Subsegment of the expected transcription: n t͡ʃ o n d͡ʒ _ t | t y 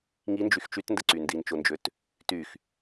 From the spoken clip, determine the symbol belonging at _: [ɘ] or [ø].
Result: ø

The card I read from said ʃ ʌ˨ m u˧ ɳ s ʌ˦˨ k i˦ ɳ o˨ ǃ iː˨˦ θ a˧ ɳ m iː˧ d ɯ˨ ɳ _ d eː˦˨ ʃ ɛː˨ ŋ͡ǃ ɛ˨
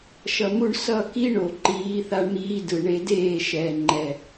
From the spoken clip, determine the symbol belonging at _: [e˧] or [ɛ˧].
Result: e˧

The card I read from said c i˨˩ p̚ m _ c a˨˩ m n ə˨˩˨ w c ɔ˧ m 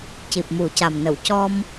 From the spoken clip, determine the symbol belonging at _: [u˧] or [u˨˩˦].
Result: u˨˩˦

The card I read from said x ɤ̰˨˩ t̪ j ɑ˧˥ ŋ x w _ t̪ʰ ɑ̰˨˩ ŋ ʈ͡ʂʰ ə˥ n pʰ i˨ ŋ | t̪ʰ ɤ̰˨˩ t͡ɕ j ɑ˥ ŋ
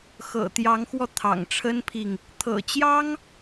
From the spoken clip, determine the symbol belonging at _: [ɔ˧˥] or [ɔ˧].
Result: ɔ˧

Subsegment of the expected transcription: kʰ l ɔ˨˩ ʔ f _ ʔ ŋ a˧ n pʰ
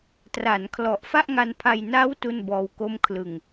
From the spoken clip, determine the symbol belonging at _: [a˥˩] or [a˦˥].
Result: a˥˩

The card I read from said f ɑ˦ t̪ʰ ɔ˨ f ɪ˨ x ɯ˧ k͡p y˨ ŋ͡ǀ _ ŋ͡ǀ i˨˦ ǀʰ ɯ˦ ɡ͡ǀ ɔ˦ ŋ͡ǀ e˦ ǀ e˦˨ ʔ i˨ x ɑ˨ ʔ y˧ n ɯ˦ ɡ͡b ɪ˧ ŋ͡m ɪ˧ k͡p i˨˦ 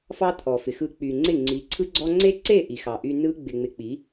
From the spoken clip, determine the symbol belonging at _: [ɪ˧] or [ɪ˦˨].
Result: ɪ˦˨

